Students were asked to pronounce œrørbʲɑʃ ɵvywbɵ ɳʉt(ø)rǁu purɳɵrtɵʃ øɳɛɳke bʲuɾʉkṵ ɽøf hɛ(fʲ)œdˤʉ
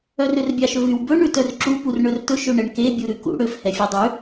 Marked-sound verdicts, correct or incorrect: incorrect: œ, correct

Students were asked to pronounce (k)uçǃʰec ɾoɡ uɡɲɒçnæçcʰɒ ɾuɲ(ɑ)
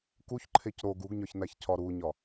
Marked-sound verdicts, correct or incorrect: correct, incorrect: ɒ

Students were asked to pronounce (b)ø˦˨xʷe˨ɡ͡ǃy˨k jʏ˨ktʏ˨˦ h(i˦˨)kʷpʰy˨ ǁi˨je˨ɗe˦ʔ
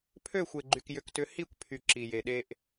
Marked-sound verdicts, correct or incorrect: incorrect: pʰ, correct

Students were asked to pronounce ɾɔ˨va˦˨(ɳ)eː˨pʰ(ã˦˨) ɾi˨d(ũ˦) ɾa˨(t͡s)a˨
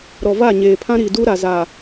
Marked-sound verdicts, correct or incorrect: incorrect: ɲ, incorrect: ã˦, incorrect: u˦, incorrect: z

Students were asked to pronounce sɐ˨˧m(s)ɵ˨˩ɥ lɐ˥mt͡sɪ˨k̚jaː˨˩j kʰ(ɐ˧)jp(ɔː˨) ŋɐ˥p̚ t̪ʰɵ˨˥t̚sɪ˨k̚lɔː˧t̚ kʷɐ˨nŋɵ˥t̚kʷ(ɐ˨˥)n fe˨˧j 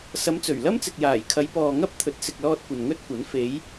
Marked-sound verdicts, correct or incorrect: incorrect: t͡s, incorrect: ɐ˨˧, correct, correct

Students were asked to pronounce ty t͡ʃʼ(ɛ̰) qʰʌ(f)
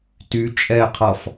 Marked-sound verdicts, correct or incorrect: incorrect: ɛ, correct

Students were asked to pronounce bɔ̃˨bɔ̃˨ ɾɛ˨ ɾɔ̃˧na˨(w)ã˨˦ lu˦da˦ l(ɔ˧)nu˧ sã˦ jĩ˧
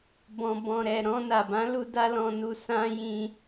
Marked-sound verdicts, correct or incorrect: incorrect: b, incorrect: ɔ̃˧

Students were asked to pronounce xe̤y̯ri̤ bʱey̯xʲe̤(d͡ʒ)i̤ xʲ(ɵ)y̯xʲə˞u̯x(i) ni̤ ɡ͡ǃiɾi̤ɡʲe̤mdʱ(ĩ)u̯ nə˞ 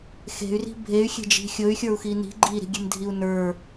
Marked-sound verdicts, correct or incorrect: correct, correct, correct, incorrect: i

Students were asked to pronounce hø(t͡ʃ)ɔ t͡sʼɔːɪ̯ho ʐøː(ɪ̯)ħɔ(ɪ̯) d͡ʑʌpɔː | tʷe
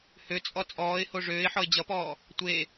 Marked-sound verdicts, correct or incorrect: incorrect: t͡sʼ, correct, correct

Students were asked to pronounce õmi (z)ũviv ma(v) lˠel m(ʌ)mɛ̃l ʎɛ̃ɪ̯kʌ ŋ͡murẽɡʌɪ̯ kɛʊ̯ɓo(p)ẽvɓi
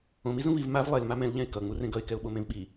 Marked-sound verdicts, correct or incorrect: correct, correct, incorrect: a, incorrect: m

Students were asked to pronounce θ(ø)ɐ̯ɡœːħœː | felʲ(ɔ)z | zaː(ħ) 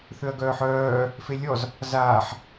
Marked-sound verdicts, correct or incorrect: correct, correct, correct

